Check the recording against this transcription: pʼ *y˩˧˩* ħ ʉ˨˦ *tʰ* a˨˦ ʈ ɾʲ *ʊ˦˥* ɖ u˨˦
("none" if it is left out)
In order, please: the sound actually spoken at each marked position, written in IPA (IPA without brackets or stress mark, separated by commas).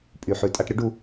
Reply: y˩˧˩, tʼ, ʊ˦˥